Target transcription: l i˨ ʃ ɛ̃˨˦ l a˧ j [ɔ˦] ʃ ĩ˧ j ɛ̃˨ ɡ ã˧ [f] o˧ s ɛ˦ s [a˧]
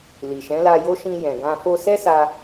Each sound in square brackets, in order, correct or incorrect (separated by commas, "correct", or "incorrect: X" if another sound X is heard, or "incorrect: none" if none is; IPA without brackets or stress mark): incorrect: o˦, correct, correct